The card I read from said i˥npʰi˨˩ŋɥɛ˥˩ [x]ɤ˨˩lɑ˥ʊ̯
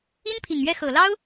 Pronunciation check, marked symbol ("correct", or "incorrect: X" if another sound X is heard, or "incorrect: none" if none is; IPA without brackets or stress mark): correct